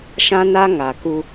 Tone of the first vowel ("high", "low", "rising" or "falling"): high